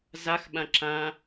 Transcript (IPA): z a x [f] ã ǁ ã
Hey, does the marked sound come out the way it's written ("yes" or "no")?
no